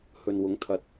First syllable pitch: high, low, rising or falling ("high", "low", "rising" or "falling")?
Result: low